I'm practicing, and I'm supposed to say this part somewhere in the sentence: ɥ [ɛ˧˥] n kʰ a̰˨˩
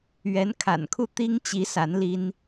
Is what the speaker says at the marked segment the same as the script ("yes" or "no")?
yes